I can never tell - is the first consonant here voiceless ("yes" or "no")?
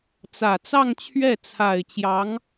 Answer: yes